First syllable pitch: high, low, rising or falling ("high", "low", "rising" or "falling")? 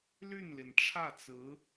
falling